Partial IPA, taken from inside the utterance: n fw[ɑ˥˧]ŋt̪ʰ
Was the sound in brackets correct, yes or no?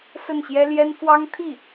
no